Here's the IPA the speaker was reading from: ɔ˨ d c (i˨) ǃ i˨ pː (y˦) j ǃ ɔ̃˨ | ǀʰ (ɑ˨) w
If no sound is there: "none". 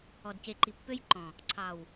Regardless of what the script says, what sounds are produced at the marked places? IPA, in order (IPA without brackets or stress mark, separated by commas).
e˨, ø˦, ɑ˨